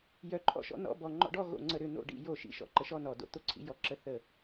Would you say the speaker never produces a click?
no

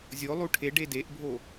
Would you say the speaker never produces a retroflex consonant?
no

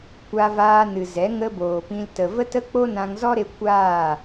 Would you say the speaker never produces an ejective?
yes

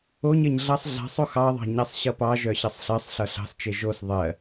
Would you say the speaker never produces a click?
yes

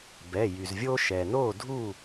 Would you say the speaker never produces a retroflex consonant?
yes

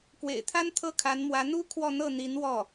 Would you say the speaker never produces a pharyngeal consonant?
yes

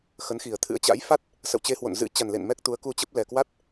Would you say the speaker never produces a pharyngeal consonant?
yes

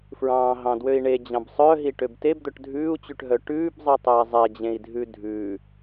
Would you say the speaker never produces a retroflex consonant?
no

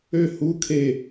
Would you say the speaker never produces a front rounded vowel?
no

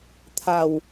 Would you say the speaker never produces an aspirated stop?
no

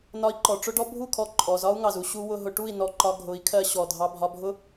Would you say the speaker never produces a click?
no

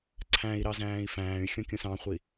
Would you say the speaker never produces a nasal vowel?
no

